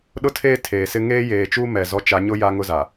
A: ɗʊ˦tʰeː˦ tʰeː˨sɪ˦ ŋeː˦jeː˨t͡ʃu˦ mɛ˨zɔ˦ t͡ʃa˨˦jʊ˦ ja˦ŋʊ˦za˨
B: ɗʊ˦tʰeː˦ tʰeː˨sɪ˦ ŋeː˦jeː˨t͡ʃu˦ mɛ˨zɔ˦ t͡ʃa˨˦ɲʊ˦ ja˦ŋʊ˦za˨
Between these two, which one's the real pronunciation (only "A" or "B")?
B